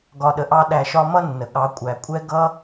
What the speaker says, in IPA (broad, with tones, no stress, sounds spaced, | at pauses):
ɡ ɒ˨ ɗ ə˨ ʔ ɑ˧ ɗ æ˨ ʃ ɒ˧ m ʌ˦ nː ə˨ ɠ ɑ˨˦ kʷʼ æ˨ kʷʼ ɛ˦ ɡ ʌ˧